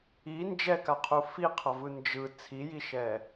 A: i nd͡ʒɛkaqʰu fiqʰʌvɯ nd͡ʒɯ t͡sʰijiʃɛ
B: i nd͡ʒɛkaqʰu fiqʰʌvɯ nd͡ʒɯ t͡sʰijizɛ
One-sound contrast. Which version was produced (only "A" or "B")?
A